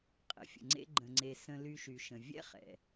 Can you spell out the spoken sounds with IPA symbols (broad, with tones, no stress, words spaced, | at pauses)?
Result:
qʼə̰˩fʲə̰˩ŋ͡ǀḛ˧ ɡ͡ǃə̃˩ŋ͡ǀe˩ sə̃˧ly˧ʃy˩ʃə̃˩ vʲɛ̰˥χɛ̰˩